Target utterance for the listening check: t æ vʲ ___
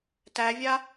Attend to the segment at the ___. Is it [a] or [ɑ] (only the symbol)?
a